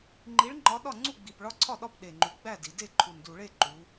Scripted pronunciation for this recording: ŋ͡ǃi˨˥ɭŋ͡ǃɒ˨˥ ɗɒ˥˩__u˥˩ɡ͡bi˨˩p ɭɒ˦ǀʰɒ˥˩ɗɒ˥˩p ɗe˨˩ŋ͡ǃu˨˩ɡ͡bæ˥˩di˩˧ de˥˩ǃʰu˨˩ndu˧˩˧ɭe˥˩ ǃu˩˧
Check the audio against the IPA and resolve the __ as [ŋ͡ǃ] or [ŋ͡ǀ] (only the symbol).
ŋ͡ǀ